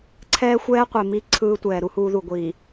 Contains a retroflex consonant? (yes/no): no